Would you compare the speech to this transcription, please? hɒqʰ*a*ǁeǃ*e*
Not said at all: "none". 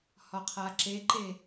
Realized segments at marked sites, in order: a, e

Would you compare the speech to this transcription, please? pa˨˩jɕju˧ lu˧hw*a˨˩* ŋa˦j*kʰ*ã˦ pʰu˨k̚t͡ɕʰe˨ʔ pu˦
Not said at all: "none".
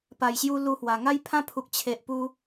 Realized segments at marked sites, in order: a˨˩, pʰ

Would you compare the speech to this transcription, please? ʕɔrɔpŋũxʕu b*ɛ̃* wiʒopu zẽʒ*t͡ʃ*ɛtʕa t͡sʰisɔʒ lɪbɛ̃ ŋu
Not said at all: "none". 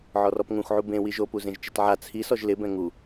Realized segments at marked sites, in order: ẽ, t͡ʃ

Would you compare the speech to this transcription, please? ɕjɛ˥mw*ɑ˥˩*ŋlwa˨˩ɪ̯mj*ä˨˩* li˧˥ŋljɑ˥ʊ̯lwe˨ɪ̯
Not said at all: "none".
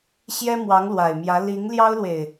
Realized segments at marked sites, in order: ɑ˧˥, ä˧˥

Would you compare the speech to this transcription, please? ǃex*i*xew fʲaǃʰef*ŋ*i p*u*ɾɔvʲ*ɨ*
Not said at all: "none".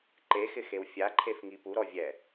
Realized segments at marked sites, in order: ɪ, ŋ, u, ɛ

